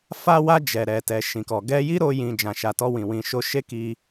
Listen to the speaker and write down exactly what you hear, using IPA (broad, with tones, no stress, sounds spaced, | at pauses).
f a˧ w a˧ d͡ʒ ɛ˨ ɾ ɛ˨ t ɛ˨ ʃ ĩ˨ k ɔ˨ ɡ ɛ˧ j i˦ ɾ o˧ j ĩ˨ d͡ʒ ã˨ ʃ a˨ t ɔ˧ w ĩ˨ w ĩ˨ ʃ o˧ ʃ e˦ k i˧